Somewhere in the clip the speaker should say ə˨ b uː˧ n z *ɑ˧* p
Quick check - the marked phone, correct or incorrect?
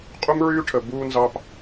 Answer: correct